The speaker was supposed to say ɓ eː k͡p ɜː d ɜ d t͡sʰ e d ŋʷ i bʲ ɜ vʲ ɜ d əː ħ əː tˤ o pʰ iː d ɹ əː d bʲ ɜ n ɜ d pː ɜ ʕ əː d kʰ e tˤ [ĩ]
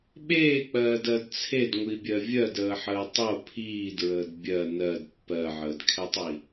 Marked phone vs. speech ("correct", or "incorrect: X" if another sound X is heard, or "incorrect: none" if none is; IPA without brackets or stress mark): incorrect: i